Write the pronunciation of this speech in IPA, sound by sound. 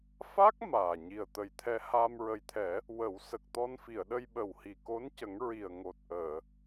f a˦˥ k̚ m aː˨˩ ɲ i˨˩ ə̯ t̪ ə˨˩ j t̪ʰ ɛ˧ h aː˧ m ɹ ə˨˩ j t̪ʰ ɛ˨˩˦ | w ə˨˩˦ w s ə˨˩ k̚ t̪ ɔ˧ n f i˨˩˨ ə̯ ɗ ə˧ j ɓ ə˨˩ w h i˨˩ k o˧˥ n c ə˨˩˦ ŋ ɹ i˨˩ ə̯ ŋ o˨˩ t̚ ʔ əː˨˩˨

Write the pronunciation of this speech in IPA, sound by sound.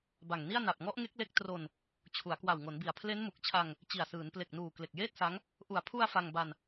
b a˨˩ ŋ n i˥˩ a̯ n a˨˩ p̚ ŋ ɔ˦˥ ʔ ŋ e˦˥ k̚ l e˦˥ k̚ t r o˧ n | t͡ɕʰ u˩˦ a̯ k w a˨˩ w ŋ o˩˦ n b i˨˩ a̯ pʰ l e˦˥ n m u˨˩ k̚ t͡ɕʰ a˧ ŋ | t͡ɕ i˨˩ a̯ s ɯː˩˦ n p l e˨˩ k̚ n uː˨˩ k l e˨˩ k̚ j eː˥˩ t̚ s a˦˥ ŋ | ʔ u˨˩ a̯ pʰ u˧ a̯ f a˧ ŋ b a˧ n

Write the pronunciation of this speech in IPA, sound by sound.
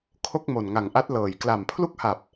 kʰ o˥˩ k̚ m o˨˩ n ŋ a˨˩ ŋ ʔ a˦˥ t̚ l ɤː˨˩ j k l a˨˩ m pʰ l u˥˩ k̚ h a˨˩ p̚

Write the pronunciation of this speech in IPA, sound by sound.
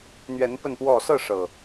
n̪ ɥ ɛ˨˦ n p ə˥˨ n p w ɔ˥˨ s ɤ˥˨ ʂ ɤ˩

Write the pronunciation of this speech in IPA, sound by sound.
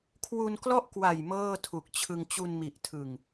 kʰ w u˧ n k l ɔ˥˩ ʔ k w a˨˩ j m ɤː˥˩ tʰ u˨˩ k̚ t͡ɕʰ ɯ˧ ŋ t͡ɕ u˧ n m i˨˩ ʔ tʰ ɯ˨˩ ŋ

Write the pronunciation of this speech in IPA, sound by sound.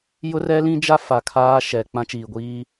j ʊ˦ r ɛ˦ l ĩ˦ d͡ʒ a˦ f a˨ kʰ aː˦ ʃ ɛ˨ k͡p ã˦ t͡ʃ iː˨ ɡʷ iː˦

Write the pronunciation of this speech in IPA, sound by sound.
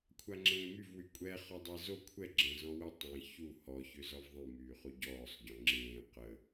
kʷʰ a ŋ͡ǁ ẽː m y v w y kʷʼ ɛ χ ɔ dˤ ɛ z o kʷʰ ɛ ɡ͡ǁ ɛ̃ z ɔ̃ w ə tˤ ẽ ç u h ɔ ç ø z ɔ v ðˤ ĩ m yː χ u ɟ ɔː sˤ ɟ ɔ̃ ŋ͡ǁ ẽː q ə

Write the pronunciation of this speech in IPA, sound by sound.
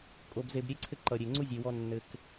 kʼ o˧ b z e˧ b ɾʲ e˦ ǀʰ ɘ˦ ǃ ʌ˨ ɾʲ e˨ ŋ͡ǀ u˦ zʲ e˨ w ɔ˧ nː ɘ˨ k

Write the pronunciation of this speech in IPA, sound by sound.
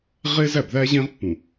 ʁ e˦ z æ˦˨ b ð æ˦ ʑ ẽ˦ ʁ pː ũ˨

